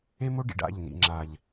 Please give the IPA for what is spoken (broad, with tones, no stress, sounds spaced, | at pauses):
e˦ m o˦ ɖ ḭ˨ ɖ a̰˦˨ ʎ n ḭ˨ ŋ͡ǁ a˨ ʎ